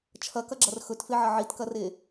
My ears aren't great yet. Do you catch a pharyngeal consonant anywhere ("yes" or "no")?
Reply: yes